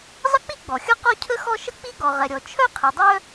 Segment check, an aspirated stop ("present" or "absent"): present